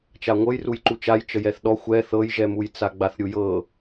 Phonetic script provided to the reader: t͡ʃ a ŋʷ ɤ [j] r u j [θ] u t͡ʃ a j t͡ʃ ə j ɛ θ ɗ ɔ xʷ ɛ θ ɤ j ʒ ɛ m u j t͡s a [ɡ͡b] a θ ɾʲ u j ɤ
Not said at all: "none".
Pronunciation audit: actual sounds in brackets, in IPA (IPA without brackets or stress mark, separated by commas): j, ǃ, ɡ͡b